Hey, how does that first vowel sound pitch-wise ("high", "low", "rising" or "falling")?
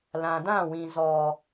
low